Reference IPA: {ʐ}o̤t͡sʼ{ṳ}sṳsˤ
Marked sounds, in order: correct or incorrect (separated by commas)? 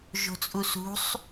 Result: incorrect, incorrect